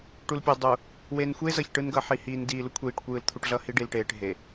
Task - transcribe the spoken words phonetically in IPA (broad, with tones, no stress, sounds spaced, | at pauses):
ʈ u˨ l pʲ o˨ dˤ u˨ | w e˨ n xʷ e˦ z ʌ˨ ç ʈ ɯ˦ n ɡ ʌ˨˦ ħ i˨ h iː˨ n d iː˨ l u˦ kʷʰ iː˨ ʈ kʷ ɯː˦ l t̪ʰ u˦ ʈ ɮ ʌ˦ h i˦ ɖ i˨ l ʈ eː˨ ʈ ɦ e˨